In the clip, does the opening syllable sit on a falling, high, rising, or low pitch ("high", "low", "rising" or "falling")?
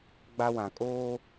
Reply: high